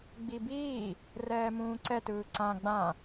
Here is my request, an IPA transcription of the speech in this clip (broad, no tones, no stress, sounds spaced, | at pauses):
ɡ͡b i b iː | r ɛː m ũː ǀ ɛ t ɯː ǀ ã ɡ͡b ã